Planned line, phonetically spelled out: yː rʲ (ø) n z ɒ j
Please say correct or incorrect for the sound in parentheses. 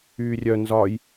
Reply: incorrect